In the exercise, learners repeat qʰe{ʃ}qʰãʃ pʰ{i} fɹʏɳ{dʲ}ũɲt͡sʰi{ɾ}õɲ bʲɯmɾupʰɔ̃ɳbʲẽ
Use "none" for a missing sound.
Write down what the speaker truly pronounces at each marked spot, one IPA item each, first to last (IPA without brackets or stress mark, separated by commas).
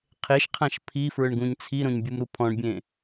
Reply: ʃ, i, ɡ, ɾ